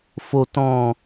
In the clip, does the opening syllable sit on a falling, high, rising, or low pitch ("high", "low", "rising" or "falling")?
low